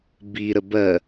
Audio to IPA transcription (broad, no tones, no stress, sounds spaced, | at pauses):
b i ɾ ə b ɜ